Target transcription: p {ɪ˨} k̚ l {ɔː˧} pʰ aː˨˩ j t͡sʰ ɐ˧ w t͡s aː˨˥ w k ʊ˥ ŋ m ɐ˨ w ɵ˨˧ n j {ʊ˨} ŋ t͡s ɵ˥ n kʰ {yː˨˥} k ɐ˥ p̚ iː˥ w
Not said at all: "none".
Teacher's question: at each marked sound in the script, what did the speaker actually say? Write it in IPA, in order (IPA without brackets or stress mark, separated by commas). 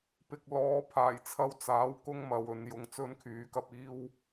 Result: ɪ˨, ɔː˨˧, ʊ˨, yː˨˥